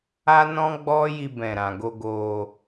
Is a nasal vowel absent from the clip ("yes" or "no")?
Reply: no